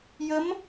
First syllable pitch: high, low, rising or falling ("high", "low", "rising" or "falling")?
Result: rising